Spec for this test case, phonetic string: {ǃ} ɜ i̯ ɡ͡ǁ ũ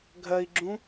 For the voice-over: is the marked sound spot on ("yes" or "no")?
no